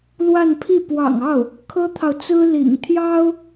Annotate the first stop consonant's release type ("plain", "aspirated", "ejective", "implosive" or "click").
aspirated